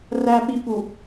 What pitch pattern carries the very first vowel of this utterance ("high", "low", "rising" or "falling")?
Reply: low